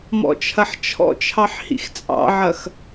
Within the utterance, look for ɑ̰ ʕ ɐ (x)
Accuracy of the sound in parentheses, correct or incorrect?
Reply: correct